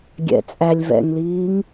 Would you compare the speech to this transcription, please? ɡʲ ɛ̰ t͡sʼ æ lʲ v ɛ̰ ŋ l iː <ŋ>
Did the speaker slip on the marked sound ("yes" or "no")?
no